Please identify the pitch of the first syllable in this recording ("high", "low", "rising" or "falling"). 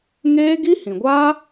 high